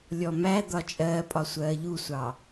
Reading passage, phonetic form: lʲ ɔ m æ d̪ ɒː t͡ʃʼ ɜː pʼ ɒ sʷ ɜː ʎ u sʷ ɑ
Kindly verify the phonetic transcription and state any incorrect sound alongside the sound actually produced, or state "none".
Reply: ɒː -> ɒ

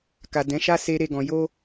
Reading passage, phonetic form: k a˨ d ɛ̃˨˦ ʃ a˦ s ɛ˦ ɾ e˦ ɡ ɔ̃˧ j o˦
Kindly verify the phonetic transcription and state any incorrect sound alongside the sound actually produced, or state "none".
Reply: ɛ˦ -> e˦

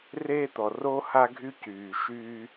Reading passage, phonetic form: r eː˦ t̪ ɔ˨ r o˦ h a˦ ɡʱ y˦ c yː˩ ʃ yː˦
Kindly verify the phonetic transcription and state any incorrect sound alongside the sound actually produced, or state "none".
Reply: none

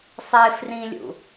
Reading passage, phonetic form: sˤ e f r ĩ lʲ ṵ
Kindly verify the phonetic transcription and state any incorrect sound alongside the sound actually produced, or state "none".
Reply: none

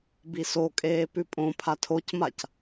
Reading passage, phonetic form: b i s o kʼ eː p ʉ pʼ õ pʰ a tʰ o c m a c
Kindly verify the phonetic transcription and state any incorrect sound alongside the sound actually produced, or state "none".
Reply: none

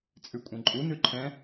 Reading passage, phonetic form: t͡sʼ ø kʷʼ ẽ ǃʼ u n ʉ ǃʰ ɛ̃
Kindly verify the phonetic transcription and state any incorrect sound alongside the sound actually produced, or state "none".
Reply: ø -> ʉ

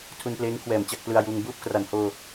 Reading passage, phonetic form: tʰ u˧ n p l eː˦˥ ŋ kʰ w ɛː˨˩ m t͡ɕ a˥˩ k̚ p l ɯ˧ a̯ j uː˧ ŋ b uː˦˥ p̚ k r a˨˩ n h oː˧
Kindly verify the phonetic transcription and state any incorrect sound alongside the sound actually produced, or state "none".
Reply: none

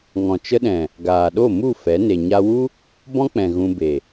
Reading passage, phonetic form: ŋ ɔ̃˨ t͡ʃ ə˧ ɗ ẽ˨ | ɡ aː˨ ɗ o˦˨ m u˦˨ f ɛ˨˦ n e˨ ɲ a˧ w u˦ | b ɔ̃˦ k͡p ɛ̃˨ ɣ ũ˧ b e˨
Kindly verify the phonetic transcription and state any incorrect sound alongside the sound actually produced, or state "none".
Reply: ẽ˨ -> ɛ̃˨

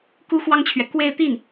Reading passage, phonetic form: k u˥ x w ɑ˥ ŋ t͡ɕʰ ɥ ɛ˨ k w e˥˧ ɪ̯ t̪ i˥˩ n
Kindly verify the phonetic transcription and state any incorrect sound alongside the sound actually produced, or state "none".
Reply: none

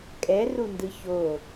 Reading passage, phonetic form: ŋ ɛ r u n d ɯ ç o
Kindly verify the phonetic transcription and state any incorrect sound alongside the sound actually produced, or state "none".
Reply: ŋ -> kʼ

